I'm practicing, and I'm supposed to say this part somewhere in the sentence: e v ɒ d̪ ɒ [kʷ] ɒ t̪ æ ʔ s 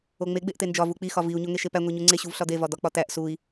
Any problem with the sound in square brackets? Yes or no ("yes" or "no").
yes